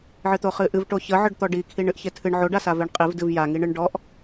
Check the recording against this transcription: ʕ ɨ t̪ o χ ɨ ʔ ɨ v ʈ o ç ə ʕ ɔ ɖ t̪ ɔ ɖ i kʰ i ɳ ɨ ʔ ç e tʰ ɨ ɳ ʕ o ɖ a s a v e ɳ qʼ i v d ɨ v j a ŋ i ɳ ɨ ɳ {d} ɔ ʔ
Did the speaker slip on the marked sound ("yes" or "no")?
yes